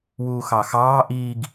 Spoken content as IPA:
w uː x ɑ x ɑː ʔ iː ɡ

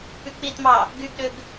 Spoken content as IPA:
p y k͡p i t m ɑ | ɡ y ɡ ɗ ø ɡ

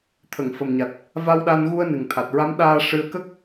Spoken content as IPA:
t̪ʰ ə˨˩˨ ŋ f ə˨˩ m ɲ a˨˩ t̚ | v a˧ w ɗ a˧ n ɣ u˧ ə̯ n ɨ˨˩ ŋ t̪ʰ a˨˩ t̚ ɹ a˧˥ m ɗ aː˧ ʂ ɨ˧ ə̯ k ə˦˥ k̚

